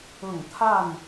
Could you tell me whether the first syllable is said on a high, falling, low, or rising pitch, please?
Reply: falling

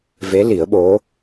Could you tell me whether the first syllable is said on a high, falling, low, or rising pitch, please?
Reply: rising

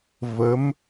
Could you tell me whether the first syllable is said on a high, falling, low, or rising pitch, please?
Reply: rising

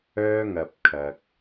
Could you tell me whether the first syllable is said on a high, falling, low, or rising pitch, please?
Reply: high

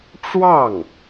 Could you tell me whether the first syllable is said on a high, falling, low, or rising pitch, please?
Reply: falling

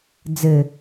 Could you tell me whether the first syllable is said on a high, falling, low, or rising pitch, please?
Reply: low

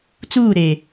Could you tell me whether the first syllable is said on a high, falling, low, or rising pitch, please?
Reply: falling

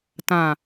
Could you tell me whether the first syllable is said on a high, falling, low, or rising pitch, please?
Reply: low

